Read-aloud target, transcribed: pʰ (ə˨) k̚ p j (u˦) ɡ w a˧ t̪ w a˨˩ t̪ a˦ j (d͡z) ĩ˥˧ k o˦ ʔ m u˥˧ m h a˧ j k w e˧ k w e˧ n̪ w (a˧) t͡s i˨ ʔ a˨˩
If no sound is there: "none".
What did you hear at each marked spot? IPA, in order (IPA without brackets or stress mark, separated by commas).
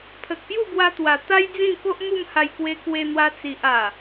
ə˨, u˥˧, d͡z, a˧